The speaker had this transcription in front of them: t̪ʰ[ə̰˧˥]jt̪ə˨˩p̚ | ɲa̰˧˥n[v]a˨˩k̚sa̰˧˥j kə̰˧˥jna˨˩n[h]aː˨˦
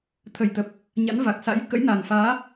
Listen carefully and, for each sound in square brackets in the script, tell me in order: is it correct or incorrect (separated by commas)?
incorrect, correct, incorrect